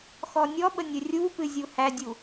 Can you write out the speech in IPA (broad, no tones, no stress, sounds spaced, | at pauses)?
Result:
x ɔ nʲ ɔ ɓ ə nʲ ɵ rʲ u p ɨ zʲ u h æ dʲ u